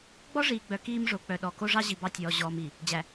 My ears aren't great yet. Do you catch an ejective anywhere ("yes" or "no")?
no